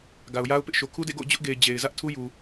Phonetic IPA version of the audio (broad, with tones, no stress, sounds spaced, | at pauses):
ɡ a˨ ʊ̯ j a˦ ʊ̯ p ɪ˦ ʔ ʃ o˨ kʰ u˦ d ḛ˦˨ ɡ o̰˦˨ ʊ̯ d͡ʑ ʊ˦ ʔ ɡ e˨ ɪ̯ d͡ʑ e˨ ɪ̯ z ä˦ ʔ tʰ u˦ j u˨